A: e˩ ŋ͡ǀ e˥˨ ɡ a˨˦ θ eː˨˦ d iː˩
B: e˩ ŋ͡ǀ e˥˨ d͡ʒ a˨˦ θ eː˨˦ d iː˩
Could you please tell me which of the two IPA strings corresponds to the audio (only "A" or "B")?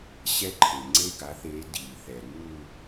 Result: A